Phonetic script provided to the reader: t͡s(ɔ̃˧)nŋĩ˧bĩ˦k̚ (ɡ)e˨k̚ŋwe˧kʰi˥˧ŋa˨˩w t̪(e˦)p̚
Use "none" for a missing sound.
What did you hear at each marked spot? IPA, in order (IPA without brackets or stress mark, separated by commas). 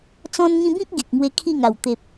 ɔ̃˧, ɡ, e˨